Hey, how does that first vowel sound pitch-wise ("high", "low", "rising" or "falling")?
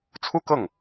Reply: high